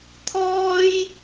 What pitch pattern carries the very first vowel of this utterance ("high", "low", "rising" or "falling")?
high